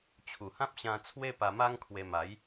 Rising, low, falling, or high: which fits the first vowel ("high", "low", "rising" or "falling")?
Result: low